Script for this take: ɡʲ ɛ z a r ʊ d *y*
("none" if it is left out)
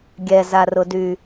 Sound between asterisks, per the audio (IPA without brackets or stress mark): y